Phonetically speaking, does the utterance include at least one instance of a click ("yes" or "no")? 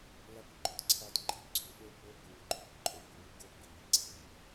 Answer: yes